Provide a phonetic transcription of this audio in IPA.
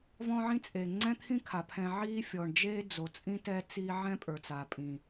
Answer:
v ɔ̃ː˥ ʕ ĩ˥ t͡sʼ e˩ ŋ͡ǀ ɛ̃˥ t̪ʰ ĩ˥ kʰ a˩ pʰ ɛ̃˨ ʕ iː˦ fʲ ɔ˩ ɳ d͡ʒ eː˥ d͡z o˩ t͡sʼ ĩ˥ t ɛ˥ t͡s iː˥ ʕ ɛ̃˥ pʼ ə˞˩ t͡s a˩ pʼ ĩ˩

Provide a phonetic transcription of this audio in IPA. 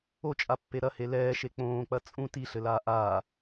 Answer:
o t͡ʃʼ a pː e ɾ ɐ h e l ɛː ʃ e k͡p õː k͡p ɐ t͡sʼ ũ t i ɬ ɘ l aː ʔ aː

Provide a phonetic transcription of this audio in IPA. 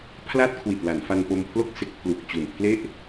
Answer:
pʰ l a˥˩ t̚ kʰ w i˨˩ t̚ l a˩˦ n f a˧ n p o˧ m pʰ l o˥˩ k̚ s e˦˥ k̚ pʰ l u˨˩ k̚ t͡ɕ u˨˩ n pʰ l e˥˩ ʔ

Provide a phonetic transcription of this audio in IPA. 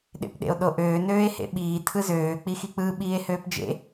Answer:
ɗ ḛ p ɗ ḛ o̯ ɗ o ʔ øː n øː e̯ h ḛ ɓ iː tʰ ɯ z øː k͡p i x i k͡p ɯ ɓ iː e̯ h øː p d͡ʒ ḛ

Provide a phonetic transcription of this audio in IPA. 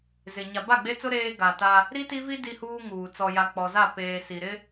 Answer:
z ɪ˨ ɲ a˨ b a˦˨ ɡ͡b e˦ t͡s ʊ˦ ɾ eː˦ ɡ a˨ t a˦ | ɾ i˦ t i˦ v i˦ d i˦ h uː˦ ŋ uː˨ t͡s ɔ˨ j a˨ k͡p ɔ˨ z a˦˨ p eː˨ s i˨ ɾ ɪ˦

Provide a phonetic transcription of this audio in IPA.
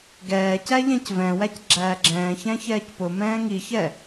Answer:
ɡ ɛː c æ ʎ æ̃ c v ɛ̃ w æ c ɡ͡ǁ æː ɡ͡ǁ ɛ̃ː ç æ̃ ç ɛː c p ʊ m ɛ̃ː ŋ i ç ɛ

